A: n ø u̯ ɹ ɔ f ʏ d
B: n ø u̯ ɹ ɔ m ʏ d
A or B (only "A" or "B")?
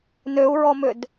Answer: B